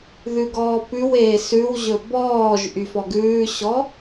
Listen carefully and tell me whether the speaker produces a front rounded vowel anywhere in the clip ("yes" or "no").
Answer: yes